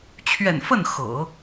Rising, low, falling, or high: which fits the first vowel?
low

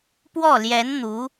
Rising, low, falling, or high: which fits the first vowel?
falling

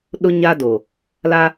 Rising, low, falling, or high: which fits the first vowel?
high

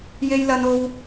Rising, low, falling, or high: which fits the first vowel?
high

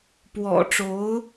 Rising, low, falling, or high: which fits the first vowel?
low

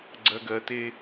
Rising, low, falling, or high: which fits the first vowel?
low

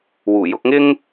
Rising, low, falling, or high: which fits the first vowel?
low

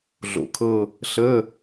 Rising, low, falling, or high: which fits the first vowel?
low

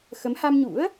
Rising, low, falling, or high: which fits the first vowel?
rising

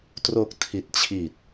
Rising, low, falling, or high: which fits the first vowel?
low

